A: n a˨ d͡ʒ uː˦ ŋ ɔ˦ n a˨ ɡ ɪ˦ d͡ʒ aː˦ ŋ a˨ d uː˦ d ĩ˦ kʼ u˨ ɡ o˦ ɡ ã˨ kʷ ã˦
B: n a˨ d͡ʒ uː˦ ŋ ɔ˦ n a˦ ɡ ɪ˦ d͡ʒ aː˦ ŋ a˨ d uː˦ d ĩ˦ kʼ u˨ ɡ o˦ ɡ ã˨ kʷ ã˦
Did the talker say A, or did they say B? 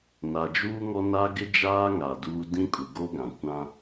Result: B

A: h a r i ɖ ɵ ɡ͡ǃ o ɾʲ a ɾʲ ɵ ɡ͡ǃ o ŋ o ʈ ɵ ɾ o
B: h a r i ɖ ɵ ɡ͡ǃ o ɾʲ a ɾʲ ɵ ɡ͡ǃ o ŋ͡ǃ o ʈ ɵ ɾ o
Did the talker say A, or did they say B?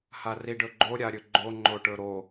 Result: B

